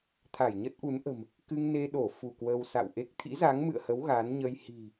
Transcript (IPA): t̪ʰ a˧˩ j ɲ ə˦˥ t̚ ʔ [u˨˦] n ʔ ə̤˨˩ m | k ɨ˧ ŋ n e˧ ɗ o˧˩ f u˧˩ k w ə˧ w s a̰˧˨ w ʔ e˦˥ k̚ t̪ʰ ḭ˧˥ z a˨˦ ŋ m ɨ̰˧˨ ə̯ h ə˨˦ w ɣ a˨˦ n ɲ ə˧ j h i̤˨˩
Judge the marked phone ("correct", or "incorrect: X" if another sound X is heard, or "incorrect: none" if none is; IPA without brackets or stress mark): correct